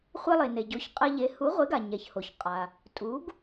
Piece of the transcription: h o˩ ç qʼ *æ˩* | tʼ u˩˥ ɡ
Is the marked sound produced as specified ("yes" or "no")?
no